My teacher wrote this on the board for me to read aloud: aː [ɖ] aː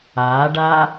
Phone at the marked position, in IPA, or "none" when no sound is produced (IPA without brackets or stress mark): ɖ